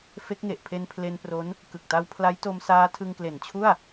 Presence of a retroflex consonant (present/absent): absent